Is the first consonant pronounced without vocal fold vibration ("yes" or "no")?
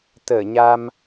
yes